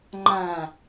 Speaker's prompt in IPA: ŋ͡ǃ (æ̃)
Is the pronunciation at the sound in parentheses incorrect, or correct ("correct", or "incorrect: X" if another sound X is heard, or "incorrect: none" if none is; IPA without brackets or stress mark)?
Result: correct